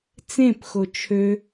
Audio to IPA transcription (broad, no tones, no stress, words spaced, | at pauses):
t͡sẽpxo t͡ʃʰø